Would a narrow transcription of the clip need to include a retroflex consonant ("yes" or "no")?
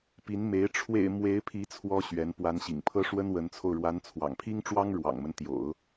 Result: yes